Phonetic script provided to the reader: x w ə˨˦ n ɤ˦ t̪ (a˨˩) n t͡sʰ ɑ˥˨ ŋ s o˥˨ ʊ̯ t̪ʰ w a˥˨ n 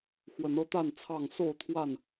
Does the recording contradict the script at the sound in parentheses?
yes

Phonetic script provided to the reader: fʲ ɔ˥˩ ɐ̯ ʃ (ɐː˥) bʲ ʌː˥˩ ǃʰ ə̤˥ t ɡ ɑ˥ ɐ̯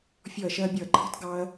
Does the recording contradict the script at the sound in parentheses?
no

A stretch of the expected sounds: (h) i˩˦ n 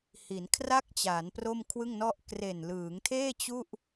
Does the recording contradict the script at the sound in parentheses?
no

